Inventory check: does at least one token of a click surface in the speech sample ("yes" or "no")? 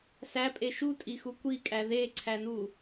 yes